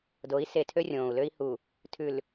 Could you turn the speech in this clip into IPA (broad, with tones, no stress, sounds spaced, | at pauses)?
d o˨˦ i̯ s e˨ tʰ ø˦ rʲ õː˨ u̯ l ø˦ i̯ h u˨ | tʰ ʉ˨ l